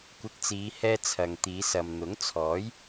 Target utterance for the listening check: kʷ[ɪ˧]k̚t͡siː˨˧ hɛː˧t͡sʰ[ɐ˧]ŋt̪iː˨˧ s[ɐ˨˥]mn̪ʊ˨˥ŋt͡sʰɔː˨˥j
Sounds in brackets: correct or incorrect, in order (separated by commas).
correct, incorrect, incorrect